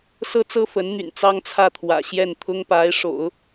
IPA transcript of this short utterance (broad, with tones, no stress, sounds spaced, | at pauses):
s ɤ˥ t͡s ɤ˥ f ə˧˥ n n̪ y̰˨˩ n t͡s ɑ˥ ŋ t͡sʰ ä˥˩ t̪ʰ w ä̰˨˩ ɕ j ɛ˥˩ n t̪ʰ ʊ˥ ŋ p a˧˥ ɪ̯ ʂ o̰˨˩˦ ʊ̯